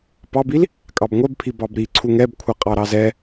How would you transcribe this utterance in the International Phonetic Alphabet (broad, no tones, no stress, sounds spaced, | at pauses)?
p ɑ b i l | kʼ ɑ b ŋʷ ɛ b pʰ i b ɑ b ɾ i ǀʰ u ŋ ɛ b kʷʰ ɛ qʼ ɑ ɾ ɑ z ɛ